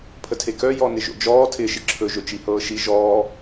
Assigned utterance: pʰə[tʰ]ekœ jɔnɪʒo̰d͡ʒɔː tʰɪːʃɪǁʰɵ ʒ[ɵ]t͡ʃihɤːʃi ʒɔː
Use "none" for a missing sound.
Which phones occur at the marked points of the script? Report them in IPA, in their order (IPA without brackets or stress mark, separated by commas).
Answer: tʰ, ɵ